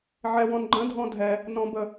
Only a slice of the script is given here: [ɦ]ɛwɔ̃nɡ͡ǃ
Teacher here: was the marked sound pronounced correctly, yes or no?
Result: no